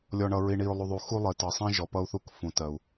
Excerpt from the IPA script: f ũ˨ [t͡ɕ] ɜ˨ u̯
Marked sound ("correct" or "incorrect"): incorrect